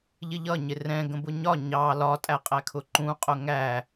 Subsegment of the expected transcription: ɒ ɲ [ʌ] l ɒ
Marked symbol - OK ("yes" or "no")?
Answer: no